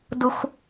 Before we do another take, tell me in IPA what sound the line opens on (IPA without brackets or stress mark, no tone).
d